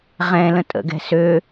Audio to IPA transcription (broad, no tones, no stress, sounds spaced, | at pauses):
ʁ ɛ̃ l ə̃ tʼ ə̰ ɡ ɛ̤ s ø